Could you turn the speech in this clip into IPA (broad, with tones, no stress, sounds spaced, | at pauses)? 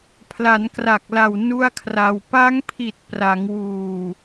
pʰ l a˩˦ n k r a˨˩ k̚ l a˨˩ w n u˥˩ a̯ kʰ r a˧ w p a˦˥ ŋ pʰ i˨˩ t̚ p r a˩˦ ŋ w uː˨˩